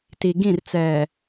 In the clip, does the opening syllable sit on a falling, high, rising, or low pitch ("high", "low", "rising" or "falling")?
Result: low